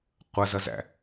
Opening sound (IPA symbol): qʷ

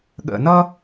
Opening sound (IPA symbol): ɠ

